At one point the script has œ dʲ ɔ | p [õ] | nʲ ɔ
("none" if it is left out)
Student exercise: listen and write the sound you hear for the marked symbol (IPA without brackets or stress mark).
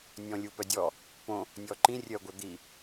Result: õ